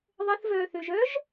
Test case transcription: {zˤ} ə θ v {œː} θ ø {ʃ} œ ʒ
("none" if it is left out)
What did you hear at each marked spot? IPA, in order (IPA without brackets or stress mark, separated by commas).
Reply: ðˤ, œː, ʒ